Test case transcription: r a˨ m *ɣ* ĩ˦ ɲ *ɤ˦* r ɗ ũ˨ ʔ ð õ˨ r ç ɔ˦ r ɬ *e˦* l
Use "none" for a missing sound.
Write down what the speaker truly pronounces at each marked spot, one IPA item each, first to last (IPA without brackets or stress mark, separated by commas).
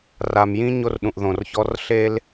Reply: j, o˦, e˦